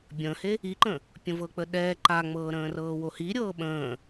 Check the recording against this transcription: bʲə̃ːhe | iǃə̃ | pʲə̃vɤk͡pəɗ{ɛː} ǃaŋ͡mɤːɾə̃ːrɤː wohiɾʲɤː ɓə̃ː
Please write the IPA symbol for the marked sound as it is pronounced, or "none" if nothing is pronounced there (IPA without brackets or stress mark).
ɛː